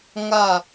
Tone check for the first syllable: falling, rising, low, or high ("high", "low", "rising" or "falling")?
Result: falling